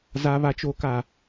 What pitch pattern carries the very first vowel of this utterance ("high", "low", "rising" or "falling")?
low